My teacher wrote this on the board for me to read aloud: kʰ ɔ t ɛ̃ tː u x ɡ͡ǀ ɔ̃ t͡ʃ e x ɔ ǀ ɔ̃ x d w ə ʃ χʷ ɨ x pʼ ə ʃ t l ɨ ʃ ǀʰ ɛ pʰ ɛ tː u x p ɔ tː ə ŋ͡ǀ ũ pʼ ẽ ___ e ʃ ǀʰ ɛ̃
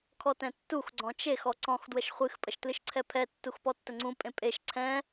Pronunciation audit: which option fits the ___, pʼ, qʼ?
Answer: pʼ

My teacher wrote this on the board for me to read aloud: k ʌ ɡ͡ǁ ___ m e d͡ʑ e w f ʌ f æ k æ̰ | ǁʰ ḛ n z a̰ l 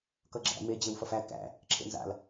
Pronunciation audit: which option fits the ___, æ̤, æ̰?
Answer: æ̰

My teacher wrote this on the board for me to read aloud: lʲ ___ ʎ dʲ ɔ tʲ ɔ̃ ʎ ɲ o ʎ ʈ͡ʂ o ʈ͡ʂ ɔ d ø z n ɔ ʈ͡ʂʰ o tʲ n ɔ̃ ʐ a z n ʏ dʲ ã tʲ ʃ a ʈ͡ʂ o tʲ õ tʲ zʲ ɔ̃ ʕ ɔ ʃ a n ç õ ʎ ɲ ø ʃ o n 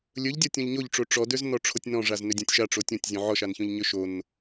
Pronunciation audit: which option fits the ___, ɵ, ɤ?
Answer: ɵ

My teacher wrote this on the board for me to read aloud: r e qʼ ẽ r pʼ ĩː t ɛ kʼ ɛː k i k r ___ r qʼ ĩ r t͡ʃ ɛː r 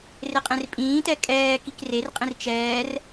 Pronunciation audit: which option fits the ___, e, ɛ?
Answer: e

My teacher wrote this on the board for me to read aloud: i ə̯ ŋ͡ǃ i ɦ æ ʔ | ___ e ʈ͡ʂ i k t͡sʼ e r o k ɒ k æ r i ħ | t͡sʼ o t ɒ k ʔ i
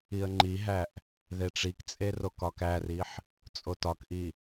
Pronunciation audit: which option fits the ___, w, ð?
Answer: ð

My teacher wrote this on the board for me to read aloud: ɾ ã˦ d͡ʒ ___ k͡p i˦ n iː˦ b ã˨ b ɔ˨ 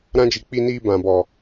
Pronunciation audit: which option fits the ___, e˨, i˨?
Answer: i˨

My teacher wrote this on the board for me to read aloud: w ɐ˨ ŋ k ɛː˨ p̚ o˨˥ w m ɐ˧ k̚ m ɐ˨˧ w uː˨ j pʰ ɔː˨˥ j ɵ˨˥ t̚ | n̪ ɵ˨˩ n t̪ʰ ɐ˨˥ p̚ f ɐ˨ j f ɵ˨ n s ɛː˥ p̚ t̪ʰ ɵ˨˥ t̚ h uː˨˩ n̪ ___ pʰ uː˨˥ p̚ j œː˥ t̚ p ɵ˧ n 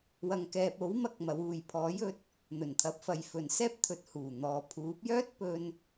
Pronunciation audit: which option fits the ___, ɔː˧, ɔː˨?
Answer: ɔː˨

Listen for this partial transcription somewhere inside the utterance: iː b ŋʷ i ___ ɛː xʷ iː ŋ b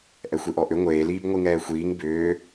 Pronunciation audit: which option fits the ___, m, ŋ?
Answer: ŋ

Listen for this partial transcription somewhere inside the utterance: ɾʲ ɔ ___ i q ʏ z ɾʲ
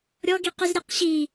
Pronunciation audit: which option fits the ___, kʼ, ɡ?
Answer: ɡ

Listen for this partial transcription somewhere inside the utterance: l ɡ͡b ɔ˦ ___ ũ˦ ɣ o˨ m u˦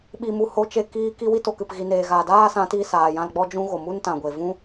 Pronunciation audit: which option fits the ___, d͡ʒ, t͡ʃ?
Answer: d͡ʒ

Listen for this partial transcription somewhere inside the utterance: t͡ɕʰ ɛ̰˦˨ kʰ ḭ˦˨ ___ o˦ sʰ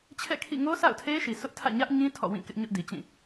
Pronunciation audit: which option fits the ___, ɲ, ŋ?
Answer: ŋ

